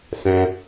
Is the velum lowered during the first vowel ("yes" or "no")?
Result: yes